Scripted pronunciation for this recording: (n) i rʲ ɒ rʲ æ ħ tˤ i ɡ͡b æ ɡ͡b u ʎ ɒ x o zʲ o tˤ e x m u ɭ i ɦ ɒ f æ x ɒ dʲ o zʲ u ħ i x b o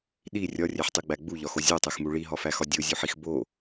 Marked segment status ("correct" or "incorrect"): incorrect